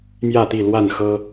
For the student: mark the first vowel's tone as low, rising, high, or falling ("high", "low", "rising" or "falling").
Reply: falling